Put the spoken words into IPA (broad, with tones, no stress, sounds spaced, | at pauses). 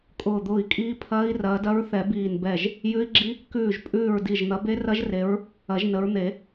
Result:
kʼ ʊː˧˩ d̪ ʊː˧˩ i̯ kʼ iː˦˥ pʰ ɐː˦˥ i̯ r ɐː˨˦ d ɐ˦˥ ɹ θ ɛ˨˩˦ b iː˧˩ n b ɛ˧˩ ʒ | j ʉ˦˥ i̯ ɡ͡ǁ i˦˥ | k ʉː˧˩ ʒ pʼ ʉː˧˩ ɹ d i˧˩ ʒ n̪ ɐ˨˦ b e˦˥ r ɐ˦˥ ʒ r e˨˦ ɹ | ɐ˨˩˦ ʒ n ə˨˦ ɹ n̪ e˨˩˦